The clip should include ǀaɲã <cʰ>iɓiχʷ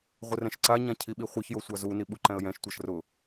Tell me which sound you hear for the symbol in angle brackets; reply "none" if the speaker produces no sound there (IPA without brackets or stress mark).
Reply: cʰ